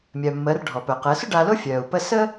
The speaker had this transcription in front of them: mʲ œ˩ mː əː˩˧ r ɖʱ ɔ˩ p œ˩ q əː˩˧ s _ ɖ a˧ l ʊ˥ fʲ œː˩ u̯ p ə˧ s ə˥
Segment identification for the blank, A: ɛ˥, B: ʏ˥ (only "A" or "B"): B